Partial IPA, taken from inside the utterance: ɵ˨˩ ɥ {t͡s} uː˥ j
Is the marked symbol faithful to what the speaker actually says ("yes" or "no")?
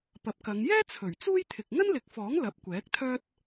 yes